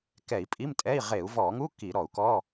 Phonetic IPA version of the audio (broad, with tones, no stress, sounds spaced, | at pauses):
k ɛ˧˩˧ i̯ pʼ i˧˥˧ m tʼ ɛ˧˥˧ i̯ ʁ e˧˩˧ u̯ v ɔ˧˩˧ ŋ u˧˥˧ k i˧˩˧ ɾ ɔ˧˩˧ u̯ k ɔ˧˥˧